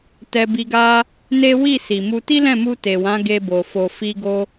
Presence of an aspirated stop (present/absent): absent